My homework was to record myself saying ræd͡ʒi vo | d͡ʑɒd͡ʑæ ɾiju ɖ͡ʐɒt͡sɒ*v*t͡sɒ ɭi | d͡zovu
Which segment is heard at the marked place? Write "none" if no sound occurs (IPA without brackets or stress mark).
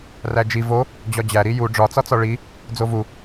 none